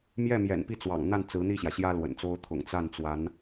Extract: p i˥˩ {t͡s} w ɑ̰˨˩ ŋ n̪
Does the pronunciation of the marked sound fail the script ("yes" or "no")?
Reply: no